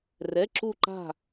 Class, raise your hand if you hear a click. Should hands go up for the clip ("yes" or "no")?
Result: yes